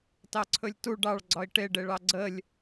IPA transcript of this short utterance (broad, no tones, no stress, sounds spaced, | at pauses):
t ɑ ǀʰ ɵ lʲ t u ɖ ɑ ɭ ɡ͡ǀ ɒ i̯ ʈ e ɖ e ɭ ɑ ɡ͡ǀ ə lʲ